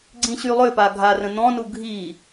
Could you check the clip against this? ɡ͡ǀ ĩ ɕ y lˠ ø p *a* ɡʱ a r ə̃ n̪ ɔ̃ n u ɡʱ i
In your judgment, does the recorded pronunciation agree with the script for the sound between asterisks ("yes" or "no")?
yes